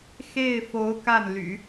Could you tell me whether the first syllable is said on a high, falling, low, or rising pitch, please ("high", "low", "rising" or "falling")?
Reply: falling